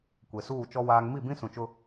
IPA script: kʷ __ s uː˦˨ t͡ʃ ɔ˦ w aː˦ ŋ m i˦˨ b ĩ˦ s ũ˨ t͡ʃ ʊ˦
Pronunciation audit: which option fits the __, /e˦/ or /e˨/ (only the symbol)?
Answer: e˨